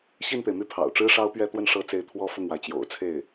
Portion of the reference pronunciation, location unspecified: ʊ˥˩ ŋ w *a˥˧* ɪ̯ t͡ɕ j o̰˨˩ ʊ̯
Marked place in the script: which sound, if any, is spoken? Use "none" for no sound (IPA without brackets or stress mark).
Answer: a˩